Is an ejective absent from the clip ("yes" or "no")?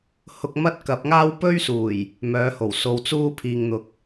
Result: yes